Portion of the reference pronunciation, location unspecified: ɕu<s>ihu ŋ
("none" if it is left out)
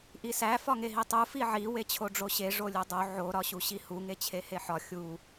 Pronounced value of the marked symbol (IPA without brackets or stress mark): ɕ